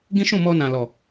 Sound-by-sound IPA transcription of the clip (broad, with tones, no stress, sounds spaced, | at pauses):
ɡ ĩ˦ ʃ ũ˦˨ m ɔ˧ n ã˨ l ɔ˨